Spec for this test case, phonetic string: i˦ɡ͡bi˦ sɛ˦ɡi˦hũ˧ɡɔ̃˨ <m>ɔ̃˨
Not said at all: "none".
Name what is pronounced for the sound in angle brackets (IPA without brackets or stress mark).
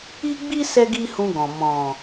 m